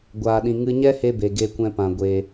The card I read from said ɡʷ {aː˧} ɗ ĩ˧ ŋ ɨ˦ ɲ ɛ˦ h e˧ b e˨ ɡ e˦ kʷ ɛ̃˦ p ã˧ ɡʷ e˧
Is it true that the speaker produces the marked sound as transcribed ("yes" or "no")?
yes